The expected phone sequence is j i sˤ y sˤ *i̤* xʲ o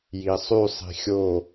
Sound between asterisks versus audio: correct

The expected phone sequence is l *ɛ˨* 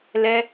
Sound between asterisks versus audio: incorrect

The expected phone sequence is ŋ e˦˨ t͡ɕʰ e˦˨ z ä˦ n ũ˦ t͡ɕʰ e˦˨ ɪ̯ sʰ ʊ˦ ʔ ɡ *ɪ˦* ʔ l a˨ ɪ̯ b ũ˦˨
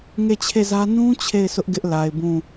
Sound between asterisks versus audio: correct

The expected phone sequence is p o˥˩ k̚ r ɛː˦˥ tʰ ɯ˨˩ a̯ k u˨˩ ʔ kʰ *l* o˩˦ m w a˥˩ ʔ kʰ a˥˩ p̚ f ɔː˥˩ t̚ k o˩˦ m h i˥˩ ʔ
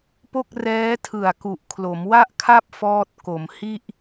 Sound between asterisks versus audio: correct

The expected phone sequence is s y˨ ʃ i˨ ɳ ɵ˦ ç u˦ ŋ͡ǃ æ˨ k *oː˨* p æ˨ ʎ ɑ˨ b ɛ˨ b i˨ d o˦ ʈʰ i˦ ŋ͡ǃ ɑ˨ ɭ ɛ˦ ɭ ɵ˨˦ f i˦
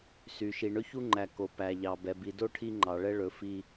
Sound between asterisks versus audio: incorrect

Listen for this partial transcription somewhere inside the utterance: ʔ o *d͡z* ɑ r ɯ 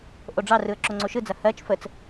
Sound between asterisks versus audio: incorrect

